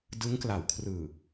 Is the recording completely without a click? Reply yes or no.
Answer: yes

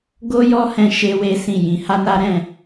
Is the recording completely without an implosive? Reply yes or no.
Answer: yes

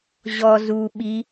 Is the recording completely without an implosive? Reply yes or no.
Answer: no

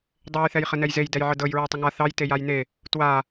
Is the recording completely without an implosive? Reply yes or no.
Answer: yes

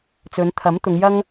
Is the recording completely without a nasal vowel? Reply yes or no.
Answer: yes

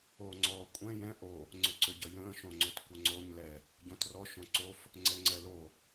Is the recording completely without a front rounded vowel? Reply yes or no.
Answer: no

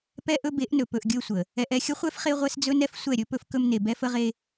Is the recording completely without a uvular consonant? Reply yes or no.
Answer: no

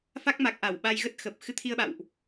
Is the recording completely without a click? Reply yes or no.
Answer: yes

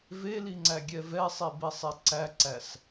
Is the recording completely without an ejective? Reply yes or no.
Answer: yes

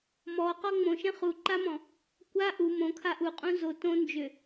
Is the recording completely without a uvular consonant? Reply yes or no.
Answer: no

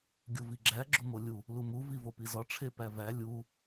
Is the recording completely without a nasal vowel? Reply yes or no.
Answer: yes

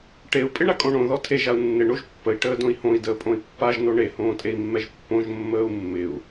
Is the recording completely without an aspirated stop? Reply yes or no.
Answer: no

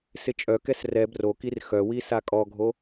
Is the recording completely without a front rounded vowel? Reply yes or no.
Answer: no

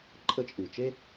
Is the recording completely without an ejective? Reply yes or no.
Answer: no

